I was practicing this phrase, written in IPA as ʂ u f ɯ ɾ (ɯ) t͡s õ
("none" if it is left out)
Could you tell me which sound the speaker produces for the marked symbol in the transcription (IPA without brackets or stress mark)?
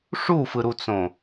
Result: u